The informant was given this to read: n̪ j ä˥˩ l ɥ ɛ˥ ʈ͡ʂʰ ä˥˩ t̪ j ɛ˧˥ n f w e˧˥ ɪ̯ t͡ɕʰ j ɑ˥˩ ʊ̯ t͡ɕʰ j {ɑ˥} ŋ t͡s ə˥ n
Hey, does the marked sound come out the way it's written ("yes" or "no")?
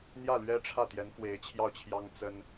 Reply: yes